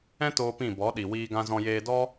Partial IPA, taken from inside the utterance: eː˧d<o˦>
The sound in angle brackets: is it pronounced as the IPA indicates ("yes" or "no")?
no